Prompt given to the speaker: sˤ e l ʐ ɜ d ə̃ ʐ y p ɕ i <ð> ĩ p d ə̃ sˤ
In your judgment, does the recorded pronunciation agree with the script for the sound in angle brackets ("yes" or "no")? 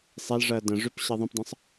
no